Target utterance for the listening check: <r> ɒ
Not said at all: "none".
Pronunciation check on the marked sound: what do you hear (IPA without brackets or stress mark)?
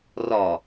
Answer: r